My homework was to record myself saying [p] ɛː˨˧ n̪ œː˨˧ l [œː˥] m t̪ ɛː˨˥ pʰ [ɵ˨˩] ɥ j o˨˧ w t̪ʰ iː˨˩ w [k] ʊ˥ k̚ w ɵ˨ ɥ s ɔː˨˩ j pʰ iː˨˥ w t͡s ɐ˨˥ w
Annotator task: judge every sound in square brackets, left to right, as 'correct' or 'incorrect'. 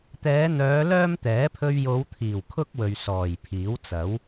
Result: incorrect, correct, incorrect, incorrect

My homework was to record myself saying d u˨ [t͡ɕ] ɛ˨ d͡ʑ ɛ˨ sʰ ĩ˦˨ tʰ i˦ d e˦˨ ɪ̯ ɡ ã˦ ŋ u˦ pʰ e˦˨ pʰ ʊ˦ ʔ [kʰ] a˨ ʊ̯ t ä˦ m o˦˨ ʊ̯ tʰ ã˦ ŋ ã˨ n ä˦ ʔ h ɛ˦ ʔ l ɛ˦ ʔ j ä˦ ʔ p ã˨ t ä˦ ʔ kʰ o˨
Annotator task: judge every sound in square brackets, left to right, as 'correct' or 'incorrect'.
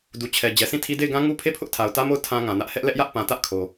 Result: incorrect, incorrect

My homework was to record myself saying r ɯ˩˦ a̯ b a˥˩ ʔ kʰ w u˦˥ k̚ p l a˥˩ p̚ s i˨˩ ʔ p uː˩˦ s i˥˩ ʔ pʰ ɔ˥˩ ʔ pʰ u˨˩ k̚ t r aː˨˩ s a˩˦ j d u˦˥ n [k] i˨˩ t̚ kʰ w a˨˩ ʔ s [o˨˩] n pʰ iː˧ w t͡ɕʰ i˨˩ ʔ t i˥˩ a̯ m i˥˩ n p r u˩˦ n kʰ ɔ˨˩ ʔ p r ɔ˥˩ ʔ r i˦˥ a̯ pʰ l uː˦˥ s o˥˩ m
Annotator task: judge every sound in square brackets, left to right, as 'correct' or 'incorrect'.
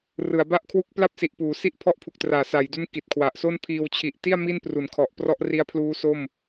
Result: correct, incorrect

